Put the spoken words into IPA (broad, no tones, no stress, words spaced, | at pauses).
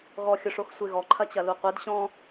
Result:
ɣɔxʲʊʂox sʷeɣɔǃʰɐt͡ɕɐ luqʷed ɕɔ̃